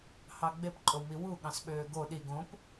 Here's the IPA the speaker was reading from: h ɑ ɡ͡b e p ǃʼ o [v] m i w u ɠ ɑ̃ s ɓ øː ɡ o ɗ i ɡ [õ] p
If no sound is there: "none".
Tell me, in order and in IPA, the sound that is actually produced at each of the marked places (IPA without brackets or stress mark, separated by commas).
w, õ